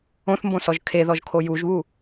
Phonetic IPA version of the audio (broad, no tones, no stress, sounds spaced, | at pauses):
õ θ m b õ s ɔ ʒ kʰ e ð ɔ ʒ kʰ o j u ʒ β u